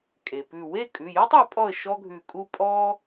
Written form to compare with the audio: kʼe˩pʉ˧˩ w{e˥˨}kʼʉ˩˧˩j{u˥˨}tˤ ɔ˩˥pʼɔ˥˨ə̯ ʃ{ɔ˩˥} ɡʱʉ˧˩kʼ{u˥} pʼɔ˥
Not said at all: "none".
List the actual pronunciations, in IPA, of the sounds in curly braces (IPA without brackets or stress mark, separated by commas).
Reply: e˥˨, u˥, ɔ˥, u˥